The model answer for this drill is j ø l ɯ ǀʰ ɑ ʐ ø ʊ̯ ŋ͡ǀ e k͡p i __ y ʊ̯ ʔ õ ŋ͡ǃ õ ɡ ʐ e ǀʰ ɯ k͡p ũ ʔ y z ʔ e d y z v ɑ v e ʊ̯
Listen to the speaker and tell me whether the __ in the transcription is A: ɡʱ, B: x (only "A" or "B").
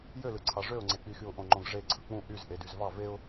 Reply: B